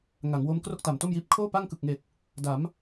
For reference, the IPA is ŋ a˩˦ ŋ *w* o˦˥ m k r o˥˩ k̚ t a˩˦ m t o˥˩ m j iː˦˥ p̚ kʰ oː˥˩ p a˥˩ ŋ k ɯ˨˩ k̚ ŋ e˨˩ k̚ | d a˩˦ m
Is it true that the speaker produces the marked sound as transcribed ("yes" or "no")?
yes